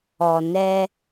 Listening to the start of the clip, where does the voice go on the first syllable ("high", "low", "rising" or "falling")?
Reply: low